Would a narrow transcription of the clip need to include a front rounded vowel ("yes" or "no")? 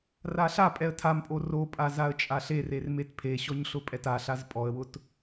no